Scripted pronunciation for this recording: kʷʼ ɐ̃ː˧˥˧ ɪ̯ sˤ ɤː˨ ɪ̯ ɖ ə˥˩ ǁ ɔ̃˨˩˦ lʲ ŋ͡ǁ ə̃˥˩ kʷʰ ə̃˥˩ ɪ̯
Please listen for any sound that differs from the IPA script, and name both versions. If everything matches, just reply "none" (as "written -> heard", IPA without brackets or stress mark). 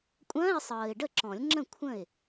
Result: none